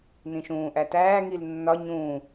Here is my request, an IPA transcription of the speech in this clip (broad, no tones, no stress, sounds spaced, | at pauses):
n ĩ ʃ ũː ʔ æ t æː ŋ i l nː ɒ ɲ ũ